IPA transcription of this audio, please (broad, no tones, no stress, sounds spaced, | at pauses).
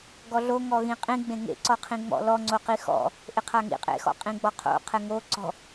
ɡ ɔ ɮ o ŋ ɔ ɣ ĩ qʼ ĩ ɡ͡b ẽ ŋ ḛ ǀ ɔ qʰ ĩ ŋ͡m ɔ̰ l ɔ ŋ͡ǀ o q i x ɔ̰ | ʔ ɪ qʰ a ŋ ḭ qʼ ḛ x ɔ̰ qʼ ĩ ɡ͡b ɔ qʰ o̰ qʰ ɛ ŋ o ǀ ɔ̤